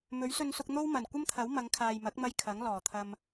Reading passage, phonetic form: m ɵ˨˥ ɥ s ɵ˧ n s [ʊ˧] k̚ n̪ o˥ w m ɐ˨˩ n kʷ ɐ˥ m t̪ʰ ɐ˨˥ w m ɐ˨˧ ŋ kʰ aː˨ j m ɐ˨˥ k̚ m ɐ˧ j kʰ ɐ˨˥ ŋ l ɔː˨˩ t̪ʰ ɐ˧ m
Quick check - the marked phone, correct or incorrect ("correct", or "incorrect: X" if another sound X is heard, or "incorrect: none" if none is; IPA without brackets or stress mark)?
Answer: correct